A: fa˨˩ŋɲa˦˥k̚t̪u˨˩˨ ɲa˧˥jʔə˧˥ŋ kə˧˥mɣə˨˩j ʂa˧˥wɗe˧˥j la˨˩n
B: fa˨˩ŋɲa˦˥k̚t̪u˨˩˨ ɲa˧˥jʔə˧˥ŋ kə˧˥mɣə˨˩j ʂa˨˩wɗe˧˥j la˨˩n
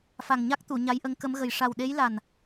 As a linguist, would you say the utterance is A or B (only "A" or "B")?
B